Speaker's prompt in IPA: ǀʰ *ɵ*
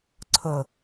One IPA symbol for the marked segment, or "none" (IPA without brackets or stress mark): ɵ